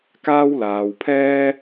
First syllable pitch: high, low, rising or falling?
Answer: high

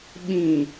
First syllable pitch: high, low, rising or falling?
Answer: low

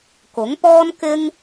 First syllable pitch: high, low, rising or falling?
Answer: rising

